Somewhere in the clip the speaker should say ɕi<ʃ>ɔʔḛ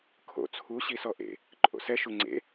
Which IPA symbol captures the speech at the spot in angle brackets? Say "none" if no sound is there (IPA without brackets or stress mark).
s